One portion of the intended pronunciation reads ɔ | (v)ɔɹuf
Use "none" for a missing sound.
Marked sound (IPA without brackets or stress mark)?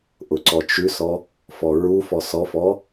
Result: f